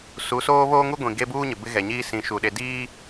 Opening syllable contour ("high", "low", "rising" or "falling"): rising